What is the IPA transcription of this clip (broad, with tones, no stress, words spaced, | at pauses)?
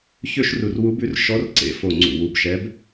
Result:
çø˥˧ʃru˧˩rwu˧˥bʉ˧˥r ʃɔ˧˥rǀḛ˧˩fo˧˩ ŋ͡ǀṵ˧˩wu˧˩bʃɛ˧˥b